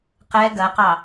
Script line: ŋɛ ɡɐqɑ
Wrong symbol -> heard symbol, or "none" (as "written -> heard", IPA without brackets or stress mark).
ŋ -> q